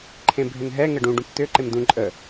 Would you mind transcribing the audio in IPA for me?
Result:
ǃʰẽbʱʏnɦɛ ŋəɖũ ɖũpt̪ʏ ǃemd̪ũ ǃʼə

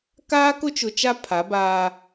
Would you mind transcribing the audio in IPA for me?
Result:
kaː˦kʊ˦t͡ʃʊ˨t͡ʃa˦ pʰa˨˦baː˦

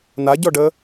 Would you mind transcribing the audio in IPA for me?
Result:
naɟɔɖə

